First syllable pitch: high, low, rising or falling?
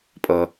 low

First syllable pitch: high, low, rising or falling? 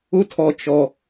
high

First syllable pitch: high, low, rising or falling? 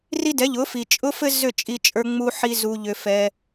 high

